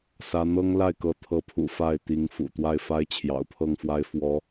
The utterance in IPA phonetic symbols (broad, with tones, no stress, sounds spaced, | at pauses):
s ä˥ n̪ ɤ˥ ŋ l a˥˩ ɪ̯ k ɤ˧˥ t̪ʰ ɤ˧˥ pʰ ṵ˨˩ f a˥˩ ɪ̯ t̪ i˧˥ ŋ f ṵ˨˩ t̪ w a˥˩ ɪ̯ f a˥ ɪ̯ t͡ɕʰ j ɑ̰˨˩ ʊ̯ pʰ ɤ˥˩ ŋ f w a˥ ɪ̯ f w ɔ˧˥